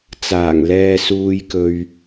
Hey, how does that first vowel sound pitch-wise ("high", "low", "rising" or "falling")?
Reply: low